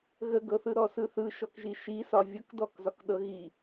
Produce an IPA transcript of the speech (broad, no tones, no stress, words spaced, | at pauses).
ɣəɡɤθɯ ɾɔsɯθɯ ʃɔkʒiʃisɒ vʲɤkdɔkzɒkɗɤ ɣi